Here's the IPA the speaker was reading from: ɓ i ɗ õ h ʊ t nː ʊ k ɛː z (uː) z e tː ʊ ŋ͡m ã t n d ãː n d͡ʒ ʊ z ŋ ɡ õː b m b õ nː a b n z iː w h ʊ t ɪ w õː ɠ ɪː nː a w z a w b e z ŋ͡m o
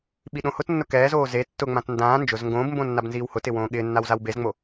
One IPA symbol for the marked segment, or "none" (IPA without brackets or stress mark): oː